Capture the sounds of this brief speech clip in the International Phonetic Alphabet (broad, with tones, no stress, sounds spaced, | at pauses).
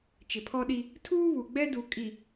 t͡ʃ ɪ˨ pʰ ɔ˦ ɗ i˦ | tʰ uː˦ β u˨ ɡ͡b ɛ˦ d u˨ kʼ i˨